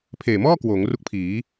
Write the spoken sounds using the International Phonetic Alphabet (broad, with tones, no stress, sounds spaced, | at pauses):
pʰ eː˨˩ m ɔː˥˩ k w oː˩˦ ŋ r u˦˥ k̚ pʰ iː˩˦